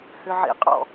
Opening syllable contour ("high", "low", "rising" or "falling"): low